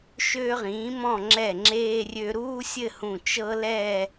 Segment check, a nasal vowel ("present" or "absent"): present